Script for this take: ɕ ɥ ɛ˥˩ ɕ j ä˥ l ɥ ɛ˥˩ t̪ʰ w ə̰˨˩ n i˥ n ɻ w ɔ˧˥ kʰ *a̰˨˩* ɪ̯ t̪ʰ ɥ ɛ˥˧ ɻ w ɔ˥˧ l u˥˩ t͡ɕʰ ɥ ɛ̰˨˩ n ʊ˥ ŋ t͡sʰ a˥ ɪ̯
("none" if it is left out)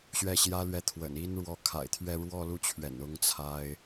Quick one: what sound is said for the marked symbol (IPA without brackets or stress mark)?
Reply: a̰˨˩